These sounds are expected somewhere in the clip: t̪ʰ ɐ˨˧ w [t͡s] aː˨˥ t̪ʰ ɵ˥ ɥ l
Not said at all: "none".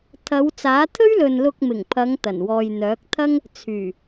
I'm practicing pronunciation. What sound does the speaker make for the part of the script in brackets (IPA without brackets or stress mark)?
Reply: t͡s